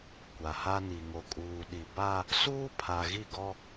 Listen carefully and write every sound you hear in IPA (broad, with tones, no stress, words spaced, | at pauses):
kʷa˨ha˦ni˨ ŋo˨ kʼuː˨ɗi˨ba˦ | suː˦pʰa˨ɣi˦˨ɡɔ˦